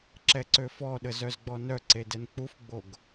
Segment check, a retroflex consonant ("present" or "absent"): absent